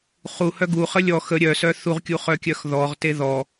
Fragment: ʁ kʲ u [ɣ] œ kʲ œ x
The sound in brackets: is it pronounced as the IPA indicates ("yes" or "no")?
no